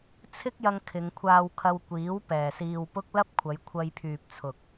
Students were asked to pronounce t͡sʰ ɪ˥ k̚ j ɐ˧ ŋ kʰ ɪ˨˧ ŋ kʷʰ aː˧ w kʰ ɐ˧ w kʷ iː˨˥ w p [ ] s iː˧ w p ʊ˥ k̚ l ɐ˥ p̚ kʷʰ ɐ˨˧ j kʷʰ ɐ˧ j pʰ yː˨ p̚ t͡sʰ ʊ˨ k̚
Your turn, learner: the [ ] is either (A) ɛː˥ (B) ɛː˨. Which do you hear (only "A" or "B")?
B